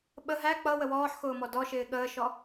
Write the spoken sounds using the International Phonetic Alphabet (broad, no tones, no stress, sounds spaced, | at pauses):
ɓ ə ɦ æ k͡p ʌ w ə w ɔː ħ x ʊː m ɔ d ɔ ʃ ɪː ɠ əː ʃ ɔ